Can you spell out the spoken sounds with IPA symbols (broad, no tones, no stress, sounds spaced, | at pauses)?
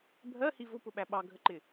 bʱ ɜ h i v ʊ p ʊ ɓ æ ɓ ɑ ɡʱ ə ǃ ɪ